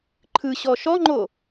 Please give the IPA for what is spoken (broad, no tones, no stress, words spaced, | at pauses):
ǃʰɯɕɔ ʃɔŋ͡ǃo